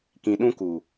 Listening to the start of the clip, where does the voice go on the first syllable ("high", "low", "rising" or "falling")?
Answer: low